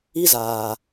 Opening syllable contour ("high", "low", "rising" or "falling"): high